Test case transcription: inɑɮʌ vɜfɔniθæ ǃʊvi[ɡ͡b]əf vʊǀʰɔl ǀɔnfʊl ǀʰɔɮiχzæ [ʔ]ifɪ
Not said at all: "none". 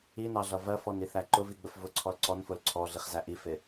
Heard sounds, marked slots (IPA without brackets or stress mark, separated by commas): ɡ͡b, ʔ